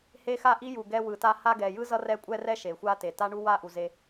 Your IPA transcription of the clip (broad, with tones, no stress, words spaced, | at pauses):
he˥xa˥ʔi˥ ju˨ɡɛ˦ wɯ˨ta˦ ha˦ɡɛ˨jɯ˥zʌ˦ rɛ˥kʷʼɛ˥rɛ˥ ʃe˩xʷa˥te˩ ta˥ɳu˥ wa˦ʔu˩ze˨